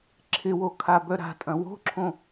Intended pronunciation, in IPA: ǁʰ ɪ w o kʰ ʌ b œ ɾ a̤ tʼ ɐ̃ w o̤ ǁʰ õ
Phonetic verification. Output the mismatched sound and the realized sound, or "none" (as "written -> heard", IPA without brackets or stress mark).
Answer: ʌ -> a